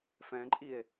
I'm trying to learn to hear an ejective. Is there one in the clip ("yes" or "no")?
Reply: yes